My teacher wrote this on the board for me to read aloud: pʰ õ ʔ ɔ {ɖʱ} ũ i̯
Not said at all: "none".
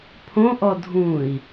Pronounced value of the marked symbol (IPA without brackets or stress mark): dʱ